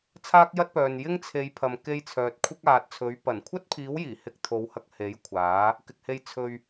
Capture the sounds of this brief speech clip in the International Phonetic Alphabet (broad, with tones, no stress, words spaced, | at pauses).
t͡sʰaː˥k̚jɐ˥t̚pœː˨n jɪ˥ŋt͡sʰe˨˧jpʰɐ˨m ke˧j t͡sʰœː˨t̚kʷʰɪ˥k̚aː˨t̚t͡sʰɵ˨˥ɥ pɐ˨˩nkʷʰɐ˥t̚pʰiː˨˥wjiː˨˩ hɪ˧k̚t̪ʰo˨˧whɐ˧k̚ he˨˥jkʷʰaː˨˥ | kɪ˨k̚he˧j t͡sʰɵ˧ɥ